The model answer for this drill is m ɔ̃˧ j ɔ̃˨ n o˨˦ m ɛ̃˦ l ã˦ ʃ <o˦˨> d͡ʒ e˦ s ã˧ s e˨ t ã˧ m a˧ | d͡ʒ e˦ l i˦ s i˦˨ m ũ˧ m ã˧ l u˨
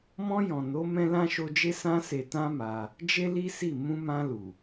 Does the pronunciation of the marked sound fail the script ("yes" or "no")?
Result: yes